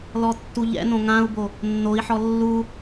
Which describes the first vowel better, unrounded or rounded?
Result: rounded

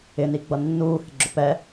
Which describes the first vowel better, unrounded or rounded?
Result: unrounded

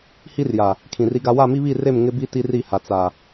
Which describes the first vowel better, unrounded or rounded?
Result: unrounded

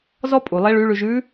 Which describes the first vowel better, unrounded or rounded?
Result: rounded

